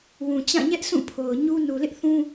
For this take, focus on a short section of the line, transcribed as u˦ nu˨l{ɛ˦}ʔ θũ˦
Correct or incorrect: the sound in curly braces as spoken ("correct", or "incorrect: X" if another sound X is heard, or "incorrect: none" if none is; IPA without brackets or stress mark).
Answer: incorrect: ɪ˦